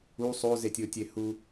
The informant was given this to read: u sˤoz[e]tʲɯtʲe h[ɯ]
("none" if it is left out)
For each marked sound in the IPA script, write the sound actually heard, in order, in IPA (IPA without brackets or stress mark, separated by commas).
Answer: e, u